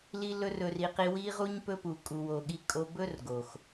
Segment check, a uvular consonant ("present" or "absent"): present